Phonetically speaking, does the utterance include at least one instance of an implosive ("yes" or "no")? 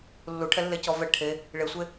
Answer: no